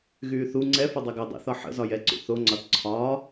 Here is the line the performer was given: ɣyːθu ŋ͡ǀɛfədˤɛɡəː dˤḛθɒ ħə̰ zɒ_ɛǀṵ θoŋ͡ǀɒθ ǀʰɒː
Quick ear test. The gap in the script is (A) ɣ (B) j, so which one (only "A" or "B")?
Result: B